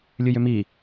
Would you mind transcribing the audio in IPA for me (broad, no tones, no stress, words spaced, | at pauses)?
lʲɨjʏmi